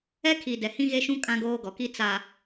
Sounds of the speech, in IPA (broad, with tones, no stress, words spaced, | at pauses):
ɛ˦kʰi˨ dɛ˨hĩ˦ɣe˦ʃũ˦ kʼã˦ɡoː˦ɡɔ˨ki˦ t͡sa˨